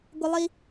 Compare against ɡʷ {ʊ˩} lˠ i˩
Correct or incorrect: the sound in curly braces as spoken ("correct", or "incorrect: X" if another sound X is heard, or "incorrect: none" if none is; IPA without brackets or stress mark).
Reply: incorrect: ə˩